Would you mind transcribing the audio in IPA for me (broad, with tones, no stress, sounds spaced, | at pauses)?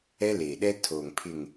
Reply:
ɛ˦ l eː˨ ɗ ɛ˦ tʰ oː˨ ŋ pʰ ɪ˨ ŋ